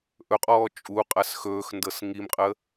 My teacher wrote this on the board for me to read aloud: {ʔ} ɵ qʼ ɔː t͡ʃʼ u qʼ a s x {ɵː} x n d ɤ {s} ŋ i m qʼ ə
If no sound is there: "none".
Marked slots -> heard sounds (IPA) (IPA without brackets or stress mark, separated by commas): ʔ, ɵː, s